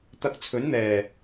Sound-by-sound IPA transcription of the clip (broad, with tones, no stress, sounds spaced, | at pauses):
t̪ ɐ˧ k̚ t͡sʰ ɵ˨˥ n n̪ ɛː˨˩